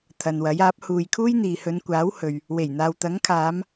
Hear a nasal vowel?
no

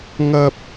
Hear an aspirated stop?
no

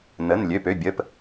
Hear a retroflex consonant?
no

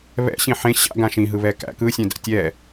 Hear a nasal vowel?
yes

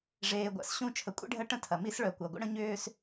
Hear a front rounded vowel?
yes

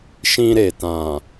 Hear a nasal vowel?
yes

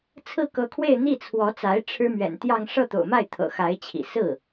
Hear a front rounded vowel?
no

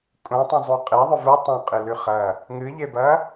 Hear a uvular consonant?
yes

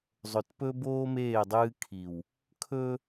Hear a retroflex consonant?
no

